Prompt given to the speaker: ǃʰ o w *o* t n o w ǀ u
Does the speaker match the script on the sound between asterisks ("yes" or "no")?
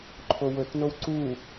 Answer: no